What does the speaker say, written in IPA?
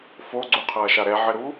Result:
foɡ͡ǀuqʰɐːʃa ɾɛʕɘɾu

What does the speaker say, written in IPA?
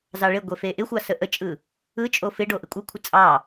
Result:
zɑɭeɡʷe feʔɪxʷɑ səʔət͡ʃʼɯ | ɯ t͡ʃʼofɪɖo ʔɪkʷʼəkʷʰɪ t͡sʼɑ

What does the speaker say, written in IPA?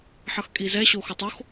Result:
ħʌxkʼizɛ ɕoxotˤox

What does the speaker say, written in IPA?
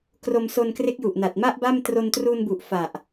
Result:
kro˧mso˧nkre˦˥k̚ju˨˩ʔ na˨˩t̚ma˥˩ʔ ba˥˩m tro˧ntru˧nbu˨˩ʔ fa˨˩ʔ

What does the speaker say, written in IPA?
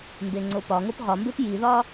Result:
mbeŋ͡ǀopɒŋop ʁɒmbep jiðɒ

